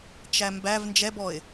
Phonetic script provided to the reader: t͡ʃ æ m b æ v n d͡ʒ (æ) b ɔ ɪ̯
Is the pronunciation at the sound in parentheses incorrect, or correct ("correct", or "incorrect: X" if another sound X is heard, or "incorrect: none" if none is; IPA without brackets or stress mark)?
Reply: incorrect: ɛ